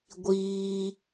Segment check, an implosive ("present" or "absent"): absent